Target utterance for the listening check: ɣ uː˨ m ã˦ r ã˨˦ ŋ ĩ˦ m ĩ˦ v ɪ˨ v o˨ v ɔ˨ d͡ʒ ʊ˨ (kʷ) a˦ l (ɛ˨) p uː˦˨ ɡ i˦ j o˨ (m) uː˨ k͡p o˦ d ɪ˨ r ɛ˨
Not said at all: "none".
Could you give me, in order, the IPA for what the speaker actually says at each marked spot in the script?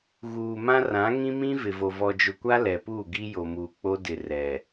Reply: kʷ, ɛ˨, m

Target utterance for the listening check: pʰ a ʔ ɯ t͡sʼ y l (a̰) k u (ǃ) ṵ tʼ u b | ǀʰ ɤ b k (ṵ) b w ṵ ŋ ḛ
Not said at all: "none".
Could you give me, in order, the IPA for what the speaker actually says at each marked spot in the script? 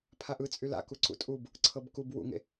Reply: a̰, ǀ, u

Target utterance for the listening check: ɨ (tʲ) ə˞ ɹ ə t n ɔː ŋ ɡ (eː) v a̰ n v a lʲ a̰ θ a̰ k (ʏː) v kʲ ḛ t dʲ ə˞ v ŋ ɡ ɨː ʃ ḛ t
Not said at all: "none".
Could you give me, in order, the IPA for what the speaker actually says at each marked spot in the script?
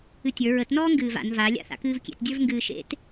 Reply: tʲ, ɨː, ɨː

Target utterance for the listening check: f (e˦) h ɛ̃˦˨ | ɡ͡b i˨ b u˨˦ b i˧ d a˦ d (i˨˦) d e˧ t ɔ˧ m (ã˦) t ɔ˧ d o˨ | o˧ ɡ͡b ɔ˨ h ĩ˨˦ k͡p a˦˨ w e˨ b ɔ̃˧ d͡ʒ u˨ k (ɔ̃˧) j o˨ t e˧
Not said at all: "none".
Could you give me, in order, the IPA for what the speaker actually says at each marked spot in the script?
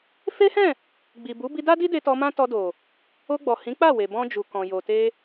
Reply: e˦, i˦, ã˦, ɔ̃˨

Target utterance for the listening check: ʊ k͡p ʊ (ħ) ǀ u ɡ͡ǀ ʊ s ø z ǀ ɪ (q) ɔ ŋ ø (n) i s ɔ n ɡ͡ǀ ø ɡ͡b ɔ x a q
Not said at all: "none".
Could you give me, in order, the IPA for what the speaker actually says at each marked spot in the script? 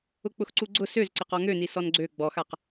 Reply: x, q, n

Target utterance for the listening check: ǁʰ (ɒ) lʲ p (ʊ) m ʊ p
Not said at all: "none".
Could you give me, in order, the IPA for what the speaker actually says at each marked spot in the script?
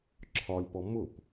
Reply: ɒ, ɔ

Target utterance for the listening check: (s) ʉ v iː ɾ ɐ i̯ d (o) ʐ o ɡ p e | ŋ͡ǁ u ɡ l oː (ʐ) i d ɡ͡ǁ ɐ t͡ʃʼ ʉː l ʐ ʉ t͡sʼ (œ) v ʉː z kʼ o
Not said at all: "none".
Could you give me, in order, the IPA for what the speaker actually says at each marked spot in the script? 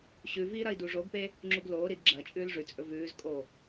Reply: ɕ, u, ɾ, ɵ

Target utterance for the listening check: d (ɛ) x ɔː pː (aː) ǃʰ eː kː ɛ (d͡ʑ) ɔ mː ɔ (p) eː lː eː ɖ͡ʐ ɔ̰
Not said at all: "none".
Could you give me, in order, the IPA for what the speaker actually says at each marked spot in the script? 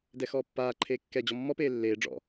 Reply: ɛ, aː, d͡ʑ, p

